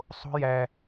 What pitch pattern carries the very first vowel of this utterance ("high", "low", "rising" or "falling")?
high